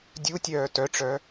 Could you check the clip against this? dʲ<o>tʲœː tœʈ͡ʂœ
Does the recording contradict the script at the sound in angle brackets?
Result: yes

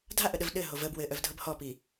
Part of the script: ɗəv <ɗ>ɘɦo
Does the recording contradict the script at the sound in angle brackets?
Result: no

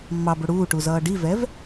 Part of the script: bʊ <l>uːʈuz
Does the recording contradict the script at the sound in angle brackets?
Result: yes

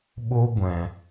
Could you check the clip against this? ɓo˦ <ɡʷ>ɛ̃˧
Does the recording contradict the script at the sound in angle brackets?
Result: no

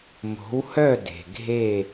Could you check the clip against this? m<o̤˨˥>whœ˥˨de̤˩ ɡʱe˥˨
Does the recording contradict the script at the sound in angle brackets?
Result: no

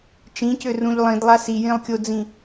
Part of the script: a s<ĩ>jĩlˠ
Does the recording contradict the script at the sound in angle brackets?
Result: yes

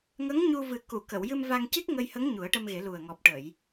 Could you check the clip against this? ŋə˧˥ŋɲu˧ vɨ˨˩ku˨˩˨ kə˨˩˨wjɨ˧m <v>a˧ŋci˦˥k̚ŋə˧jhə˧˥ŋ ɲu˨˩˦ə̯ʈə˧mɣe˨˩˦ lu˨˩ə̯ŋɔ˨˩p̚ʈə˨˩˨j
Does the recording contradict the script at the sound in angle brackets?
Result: no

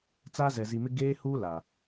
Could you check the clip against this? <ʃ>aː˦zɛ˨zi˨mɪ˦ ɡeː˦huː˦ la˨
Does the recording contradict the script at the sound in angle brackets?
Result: yes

